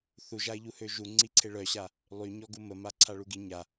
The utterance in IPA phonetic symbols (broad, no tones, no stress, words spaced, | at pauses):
θuʒaɪ̯ʎuhø ʒuŋ͡ǀi ǀʰeɭœɕa | lˠyɲɔɡu məma ǀʰaɭuɡi ɲa